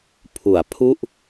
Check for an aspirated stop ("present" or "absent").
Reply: present